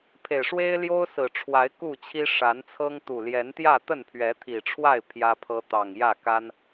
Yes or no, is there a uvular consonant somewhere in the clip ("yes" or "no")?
no